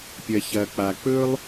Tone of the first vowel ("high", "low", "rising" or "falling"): low